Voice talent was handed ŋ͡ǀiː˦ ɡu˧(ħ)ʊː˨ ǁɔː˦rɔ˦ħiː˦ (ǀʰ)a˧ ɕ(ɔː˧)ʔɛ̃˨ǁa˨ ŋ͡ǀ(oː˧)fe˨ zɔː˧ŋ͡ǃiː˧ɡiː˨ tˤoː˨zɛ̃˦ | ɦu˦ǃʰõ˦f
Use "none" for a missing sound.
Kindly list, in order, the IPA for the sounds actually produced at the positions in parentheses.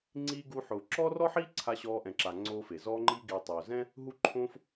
ħ, ǀʰ, ɔː˧, oː˧

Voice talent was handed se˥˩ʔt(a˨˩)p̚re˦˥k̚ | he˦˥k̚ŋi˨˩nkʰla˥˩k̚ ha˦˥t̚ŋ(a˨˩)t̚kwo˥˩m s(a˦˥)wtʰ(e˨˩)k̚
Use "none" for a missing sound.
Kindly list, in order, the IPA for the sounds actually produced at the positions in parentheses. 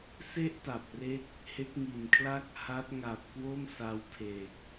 a˨˩, a˨˩, a˧, e˨˩

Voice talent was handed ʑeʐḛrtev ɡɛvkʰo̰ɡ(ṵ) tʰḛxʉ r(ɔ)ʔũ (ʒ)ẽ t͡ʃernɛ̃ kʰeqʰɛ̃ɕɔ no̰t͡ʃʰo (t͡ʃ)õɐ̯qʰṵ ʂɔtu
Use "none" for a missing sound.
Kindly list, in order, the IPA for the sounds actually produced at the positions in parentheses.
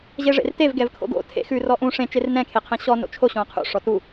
o̰, ɔ, ʂ, ɕ

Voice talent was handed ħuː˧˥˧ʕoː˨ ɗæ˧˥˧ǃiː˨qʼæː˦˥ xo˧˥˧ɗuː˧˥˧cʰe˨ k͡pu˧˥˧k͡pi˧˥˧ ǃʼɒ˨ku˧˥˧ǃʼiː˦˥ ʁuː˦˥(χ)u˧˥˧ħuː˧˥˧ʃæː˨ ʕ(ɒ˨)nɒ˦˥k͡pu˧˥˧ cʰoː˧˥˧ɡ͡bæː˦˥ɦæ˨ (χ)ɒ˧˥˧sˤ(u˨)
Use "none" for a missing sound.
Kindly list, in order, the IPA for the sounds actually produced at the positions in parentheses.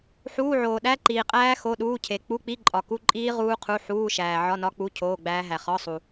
qʰ, ɒ˧˥˧, χ, u˨

